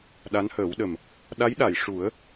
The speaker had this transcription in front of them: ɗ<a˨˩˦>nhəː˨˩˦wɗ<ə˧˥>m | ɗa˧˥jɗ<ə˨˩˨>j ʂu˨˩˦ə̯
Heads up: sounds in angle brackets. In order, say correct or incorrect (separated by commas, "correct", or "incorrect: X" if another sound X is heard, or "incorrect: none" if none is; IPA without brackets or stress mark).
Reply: incorrect: a˧˥, incorrect: ə˨˩, incorrect: a˨˩˨